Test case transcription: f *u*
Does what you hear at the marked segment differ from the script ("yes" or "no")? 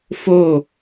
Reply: yes